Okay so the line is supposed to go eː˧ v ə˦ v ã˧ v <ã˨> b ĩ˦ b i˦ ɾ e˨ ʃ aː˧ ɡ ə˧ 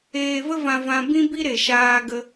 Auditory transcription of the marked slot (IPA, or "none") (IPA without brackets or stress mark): ã˧